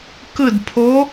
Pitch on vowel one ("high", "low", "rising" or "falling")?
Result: falling